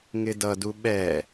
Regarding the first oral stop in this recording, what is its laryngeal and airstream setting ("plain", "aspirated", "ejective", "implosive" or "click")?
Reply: plain